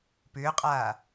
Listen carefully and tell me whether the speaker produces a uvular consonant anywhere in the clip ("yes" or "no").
yes